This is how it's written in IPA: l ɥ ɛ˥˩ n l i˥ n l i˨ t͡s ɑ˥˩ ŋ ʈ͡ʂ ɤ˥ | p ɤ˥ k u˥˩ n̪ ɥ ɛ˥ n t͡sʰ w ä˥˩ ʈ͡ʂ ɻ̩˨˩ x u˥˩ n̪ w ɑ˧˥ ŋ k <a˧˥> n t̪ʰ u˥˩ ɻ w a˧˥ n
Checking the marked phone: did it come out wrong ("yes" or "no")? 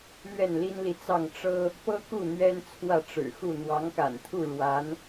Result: yes